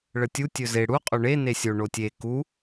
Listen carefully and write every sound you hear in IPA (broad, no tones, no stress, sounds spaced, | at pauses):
ɭ ə tʲ u tʲ ɵ z e ɽ u qʼ o ɳ e n e sʲ o ɳ o tʲ e k u